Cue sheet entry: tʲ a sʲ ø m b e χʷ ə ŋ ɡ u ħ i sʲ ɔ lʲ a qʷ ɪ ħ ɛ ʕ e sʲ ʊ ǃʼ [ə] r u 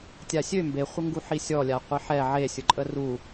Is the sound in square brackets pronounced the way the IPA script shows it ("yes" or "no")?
yes